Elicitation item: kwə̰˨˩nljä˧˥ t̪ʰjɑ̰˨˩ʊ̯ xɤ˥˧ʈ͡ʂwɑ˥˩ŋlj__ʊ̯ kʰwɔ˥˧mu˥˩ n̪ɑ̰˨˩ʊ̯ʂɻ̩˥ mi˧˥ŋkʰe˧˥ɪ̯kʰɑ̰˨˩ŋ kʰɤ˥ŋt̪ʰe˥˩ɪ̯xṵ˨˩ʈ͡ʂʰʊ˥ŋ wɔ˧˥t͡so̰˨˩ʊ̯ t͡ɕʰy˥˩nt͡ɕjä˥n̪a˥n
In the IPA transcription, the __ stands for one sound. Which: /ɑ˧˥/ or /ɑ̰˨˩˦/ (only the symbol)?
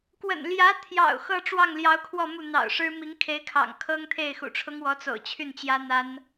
ɑ˧˥